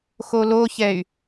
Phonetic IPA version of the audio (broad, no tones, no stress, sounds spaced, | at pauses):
x o l o ç ɛ y̯